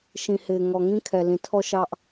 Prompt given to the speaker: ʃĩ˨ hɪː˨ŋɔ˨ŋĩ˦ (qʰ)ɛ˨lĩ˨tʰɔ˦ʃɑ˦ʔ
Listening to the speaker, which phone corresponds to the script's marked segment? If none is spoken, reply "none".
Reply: kʰ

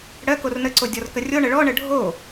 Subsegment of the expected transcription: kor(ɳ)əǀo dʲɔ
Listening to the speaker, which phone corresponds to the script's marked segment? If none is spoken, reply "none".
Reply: n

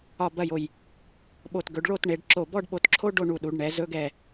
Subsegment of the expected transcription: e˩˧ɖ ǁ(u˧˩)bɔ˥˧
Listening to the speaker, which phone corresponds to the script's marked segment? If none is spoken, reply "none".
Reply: o˧˩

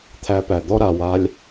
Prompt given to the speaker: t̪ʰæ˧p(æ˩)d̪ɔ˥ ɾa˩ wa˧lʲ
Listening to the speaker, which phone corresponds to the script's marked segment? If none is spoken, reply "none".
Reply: æ˩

